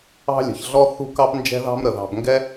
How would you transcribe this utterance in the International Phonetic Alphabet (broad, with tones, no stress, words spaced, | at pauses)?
ɑ̤˥lʲə̤˩çɮɔ˥ θṳ˥kɑ˥p nd͡ʒɛ̤˥ðɑ̤˥mɾə˩ ðɑ̤˨bŋɡɛ˥